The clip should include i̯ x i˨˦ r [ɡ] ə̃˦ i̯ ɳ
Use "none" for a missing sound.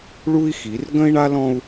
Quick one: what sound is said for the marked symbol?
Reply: ɡ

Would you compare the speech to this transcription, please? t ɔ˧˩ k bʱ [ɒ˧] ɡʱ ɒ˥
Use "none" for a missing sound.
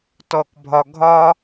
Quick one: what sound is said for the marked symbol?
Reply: ɒ˧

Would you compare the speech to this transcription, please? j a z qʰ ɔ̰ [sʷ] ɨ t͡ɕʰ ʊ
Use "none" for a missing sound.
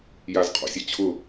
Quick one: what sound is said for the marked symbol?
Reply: sʲ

